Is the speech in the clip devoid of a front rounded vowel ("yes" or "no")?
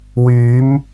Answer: no